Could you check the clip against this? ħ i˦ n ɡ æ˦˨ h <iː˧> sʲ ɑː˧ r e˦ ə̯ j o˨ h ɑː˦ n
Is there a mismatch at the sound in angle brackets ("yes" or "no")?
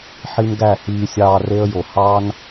no